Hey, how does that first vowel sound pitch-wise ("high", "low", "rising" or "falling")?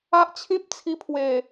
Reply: high